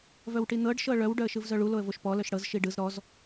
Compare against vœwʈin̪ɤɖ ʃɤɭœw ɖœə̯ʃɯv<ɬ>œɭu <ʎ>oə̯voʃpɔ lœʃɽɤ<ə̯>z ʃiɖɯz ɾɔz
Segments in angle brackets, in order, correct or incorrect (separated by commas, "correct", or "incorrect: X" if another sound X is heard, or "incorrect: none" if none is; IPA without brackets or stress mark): incorrect: z, incorrect: l, incorrect: none